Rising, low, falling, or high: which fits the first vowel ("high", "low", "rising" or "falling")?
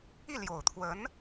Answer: falling